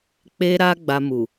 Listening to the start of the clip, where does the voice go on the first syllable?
high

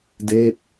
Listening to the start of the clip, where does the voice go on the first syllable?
falling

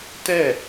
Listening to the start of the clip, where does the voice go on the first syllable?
falling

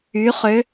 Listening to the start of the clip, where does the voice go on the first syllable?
rising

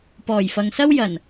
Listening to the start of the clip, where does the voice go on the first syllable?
low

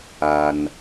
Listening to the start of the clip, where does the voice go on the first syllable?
low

